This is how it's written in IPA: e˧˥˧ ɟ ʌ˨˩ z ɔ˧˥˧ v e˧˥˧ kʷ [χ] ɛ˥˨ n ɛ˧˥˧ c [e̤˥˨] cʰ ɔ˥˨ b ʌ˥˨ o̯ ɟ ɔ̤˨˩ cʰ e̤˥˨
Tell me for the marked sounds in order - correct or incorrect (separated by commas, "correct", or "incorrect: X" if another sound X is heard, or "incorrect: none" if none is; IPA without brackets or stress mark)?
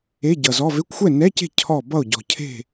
incorrect: xʷ, correct